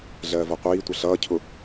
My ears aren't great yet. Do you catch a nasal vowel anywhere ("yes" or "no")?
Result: no